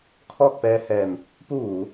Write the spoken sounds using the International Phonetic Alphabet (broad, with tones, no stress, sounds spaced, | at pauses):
kʰ ɔː˥˨ k̚ p ɛː˧ h ɛː˧˩ m | p u˥˨ ʋ uː˩˧